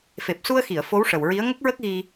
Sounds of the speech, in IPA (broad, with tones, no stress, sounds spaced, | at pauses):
f e˨˩ p̚ s u˧ ə̯ x i˨˩˨ ə̯ f o˧˥ w ʂ ə˨˩ w ɹ i˧˥ ə̯ ŋ ə˦˥ k̚ ɹ ə˦˥ k̚ ɣ i˧